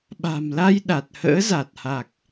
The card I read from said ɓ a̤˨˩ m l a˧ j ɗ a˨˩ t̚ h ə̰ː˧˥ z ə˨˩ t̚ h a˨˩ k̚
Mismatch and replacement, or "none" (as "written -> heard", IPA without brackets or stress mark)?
ə˨˩ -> a˨˩